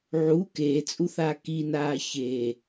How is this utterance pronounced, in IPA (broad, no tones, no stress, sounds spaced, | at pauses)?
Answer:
ʕ u k eː t͡sʼ u θ aː k i n aː ç e